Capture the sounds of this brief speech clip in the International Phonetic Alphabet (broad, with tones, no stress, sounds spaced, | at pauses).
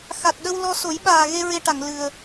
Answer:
x a˨˩ t̚ ɗ ə˧ w l ɔ˧ s o˨˩˦ j ɓ aː˨˩ ɣ e˧ ɹ e˧ ʈ a˨˩˨ ŋ l ɨ˨˩ ə̯